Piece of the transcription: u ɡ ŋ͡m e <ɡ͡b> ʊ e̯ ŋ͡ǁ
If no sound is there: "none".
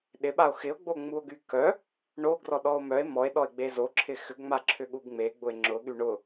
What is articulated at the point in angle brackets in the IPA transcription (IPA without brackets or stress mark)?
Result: ɡ͡b